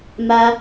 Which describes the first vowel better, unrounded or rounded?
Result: unrounded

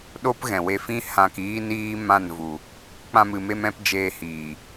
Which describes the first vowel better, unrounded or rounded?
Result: rounded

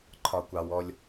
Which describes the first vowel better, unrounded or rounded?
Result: rounded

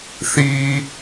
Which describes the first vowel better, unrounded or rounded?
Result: unrounded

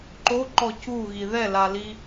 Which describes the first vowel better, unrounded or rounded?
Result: rounded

